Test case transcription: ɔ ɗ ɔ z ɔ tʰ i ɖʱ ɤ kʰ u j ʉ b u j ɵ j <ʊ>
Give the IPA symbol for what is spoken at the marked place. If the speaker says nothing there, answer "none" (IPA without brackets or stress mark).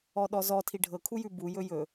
ɵ